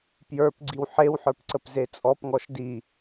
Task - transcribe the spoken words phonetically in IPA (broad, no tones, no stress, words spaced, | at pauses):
pjə˞p ɡ͡ǀiwħewħə˞pǀəp zet͡sʼɔp ŋɔʃdi